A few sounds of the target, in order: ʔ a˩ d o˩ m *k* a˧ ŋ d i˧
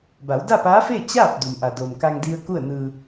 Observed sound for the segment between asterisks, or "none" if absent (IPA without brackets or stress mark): k